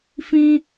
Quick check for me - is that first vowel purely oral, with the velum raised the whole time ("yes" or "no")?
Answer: no